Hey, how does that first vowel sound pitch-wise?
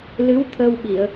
rising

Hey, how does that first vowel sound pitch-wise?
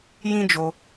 high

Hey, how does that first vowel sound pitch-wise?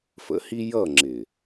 rising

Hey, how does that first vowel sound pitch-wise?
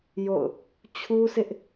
falling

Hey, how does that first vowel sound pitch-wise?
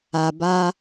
low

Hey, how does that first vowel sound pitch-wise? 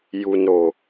low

